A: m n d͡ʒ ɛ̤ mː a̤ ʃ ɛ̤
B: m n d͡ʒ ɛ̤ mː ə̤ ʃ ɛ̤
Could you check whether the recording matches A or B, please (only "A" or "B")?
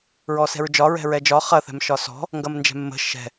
B